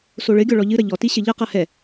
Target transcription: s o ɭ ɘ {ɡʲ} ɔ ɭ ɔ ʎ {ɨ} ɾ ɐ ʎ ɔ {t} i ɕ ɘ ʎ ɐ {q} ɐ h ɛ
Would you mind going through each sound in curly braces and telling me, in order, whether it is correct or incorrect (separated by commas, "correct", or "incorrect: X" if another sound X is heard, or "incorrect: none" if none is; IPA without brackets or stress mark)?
correct, correct, correct, correct